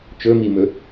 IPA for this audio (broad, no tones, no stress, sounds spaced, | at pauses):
t͡ʃ ɵ m i m ɵ